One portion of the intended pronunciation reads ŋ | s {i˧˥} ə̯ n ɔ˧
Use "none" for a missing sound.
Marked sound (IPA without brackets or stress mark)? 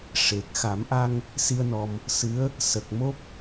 i˧